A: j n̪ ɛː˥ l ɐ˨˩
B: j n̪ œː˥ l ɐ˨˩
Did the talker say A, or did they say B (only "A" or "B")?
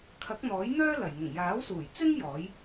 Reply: B